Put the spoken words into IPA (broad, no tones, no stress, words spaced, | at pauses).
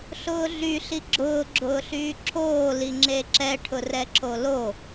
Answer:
ɬʊːɮy ɬiɡ͡ǁʊː ɡ͡ǁʊːɬyːǁʰoː liŋ͡ǁeǁɛʈʰʊ rɛǁolo